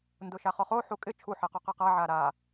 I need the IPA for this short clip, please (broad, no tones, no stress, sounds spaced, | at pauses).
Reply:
n d ʊ ʃ a χ ɔ χ o ħ u kʼ ɪ t͡ʃʰ u ħ e q o q ɛ q a ʕ a ɾ a